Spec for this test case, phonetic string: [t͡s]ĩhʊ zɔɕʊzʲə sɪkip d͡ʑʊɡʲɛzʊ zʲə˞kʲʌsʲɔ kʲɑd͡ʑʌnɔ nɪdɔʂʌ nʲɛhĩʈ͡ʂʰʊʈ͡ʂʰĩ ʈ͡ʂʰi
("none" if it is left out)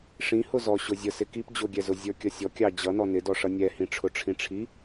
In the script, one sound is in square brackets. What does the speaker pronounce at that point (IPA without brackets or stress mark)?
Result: ʂ